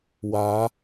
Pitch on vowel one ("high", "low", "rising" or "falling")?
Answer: rising